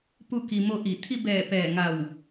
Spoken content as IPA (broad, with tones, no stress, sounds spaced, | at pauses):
p u˥˨ k i˧ m o˥˨ ʔ i˧˩ t̪ʰ i˧ b ɛː˧˩ p ɛː˧˩ ŋ a˧˩ w